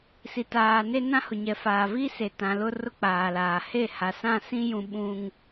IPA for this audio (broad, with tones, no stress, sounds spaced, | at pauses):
s i˨ t aː˨ n e˦ n ã˦ h ʊ˨ ɲ ɛ˨ f aː˨ v i˦ s e˨ t ã˨ l ʊ˦ r ʊ˦ k͡p aː˨ l aː˨ h e˦˨ h a˨ s ã˦˨ s ĩ˦ j ũ˦ ɓ ũ˦ ŋ